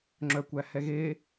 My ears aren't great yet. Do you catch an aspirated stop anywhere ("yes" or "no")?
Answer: no